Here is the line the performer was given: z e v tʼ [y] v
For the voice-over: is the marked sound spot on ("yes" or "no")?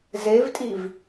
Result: no